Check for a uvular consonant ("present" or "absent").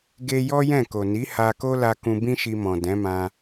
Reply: absent